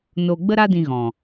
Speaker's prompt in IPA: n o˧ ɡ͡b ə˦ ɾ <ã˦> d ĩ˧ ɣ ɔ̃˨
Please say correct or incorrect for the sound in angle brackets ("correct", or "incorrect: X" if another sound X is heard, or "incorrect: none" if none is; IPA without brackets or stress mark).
incorrect: a˦